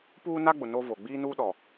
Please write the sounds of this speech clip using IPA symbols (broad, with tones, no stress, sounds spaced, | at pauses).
p uː˦ n a˦ ɡ͡b ʊ˨ n o˦ v o˨ ɡ͡b iː˦ n uː˦ ɗ ɔ˨